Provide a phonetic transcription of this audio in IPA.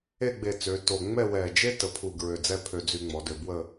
e˥˧ ɡ͡b e˧˩ t͡s ø˩˧ t o˧˩ ŋ͡m ɛ˥˧ w ɛ˧˩ d͡ʒ e˥ t ə˩˧ pʰ u˧˩ ɡ ɹ ø˧˩ d͡z ɛ˥˧ pʰ ø˧ d͡z y˧ ŋ͡m ɔ˩˧ d ø˧˩ b w ə˥˧

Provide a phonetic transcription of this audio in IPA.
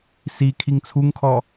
s i kʰ i ŋ t͡sʰ u ŋ kʰ ɔ

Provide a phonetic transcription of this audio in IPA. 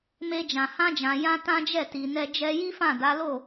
m e˧ d͡ʒ ã˨ h ã˧ d͡ʒ ã˨ j ã˧ t ã˦ d͡ʒ ɛ˦˨ t i˨ n ɛ˧ d͡ʒ ɛ˧ j i˦ f ã˦˨ d a˨˦ l o˦˨

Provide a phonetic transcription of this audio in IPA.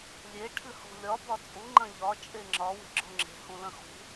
lʲ e ʈʰ ɨ h o̤ lʲ ɒ b ɒ t͡sʼ u ŋ͡ǃ ɐ̃ ʎ ɒ t͡ʃʼ e ŋ͡ǁ ɒ w e̤ ɡ͡ǁ o ŋ͡ǁ e̤ h ũ l ɐ̃ x ṳ

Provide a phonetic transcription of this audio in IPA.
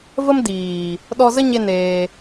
v ə˦ m d iː˨ | ɗ ɔ˧ z ə˦ ɲ e˧ n eː˧

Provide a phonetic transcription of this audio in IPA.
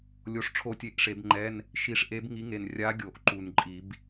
lʲ o˨˥ ʂ ʈ͡ʂʰ o˦˨ tʲ e˧˥˧ ʔ ʂ e˨˩˦ b ŋ͡ǃ ɛ˧˥˧ n | ʃ i˨˩˦ ʂ ʔ e˨˥ b ŋ i˨˥ ŋ e˨˩ n rʲ a˨˥ ɡʲ o˨˩ ʔ ǃ u˨˩ n ǃʼ i˨˩˦ b

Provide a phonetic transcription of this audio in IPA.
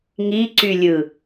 ŋ i ǀ y lʲ ɯ

